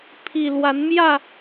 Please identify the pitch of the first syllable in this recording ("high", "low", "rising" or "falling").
low